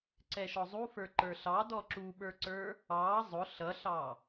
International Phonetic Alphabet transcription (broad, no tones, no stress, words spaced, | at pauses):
ǀɛʃɔzˤufə˞ ǃə˞ɬɑ dɔǁuɓə˞ǀə˞ | ɑ zˤʊ ɬʌɬɑ